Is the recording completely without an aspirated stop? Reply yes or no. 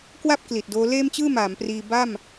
yes